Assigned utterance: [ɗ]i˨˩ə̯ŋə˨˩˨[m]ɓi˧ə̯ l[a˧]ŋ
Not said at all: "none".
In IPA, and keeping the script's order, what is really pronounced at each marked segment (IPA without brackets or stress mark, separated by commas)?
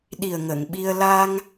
ɗ, ŋ, a˧